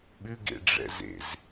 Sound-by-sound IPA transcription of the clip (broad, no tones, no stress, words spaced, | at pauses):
ɓʉɡḛɖ͡ʐɛ̰zḛz